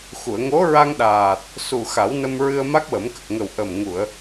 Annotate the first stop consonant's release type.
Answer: implosive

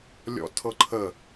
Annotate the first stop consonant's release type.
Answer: aspirated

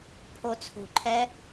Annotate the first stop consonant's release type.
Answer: aspirated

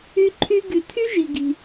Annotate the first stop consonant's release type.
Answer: click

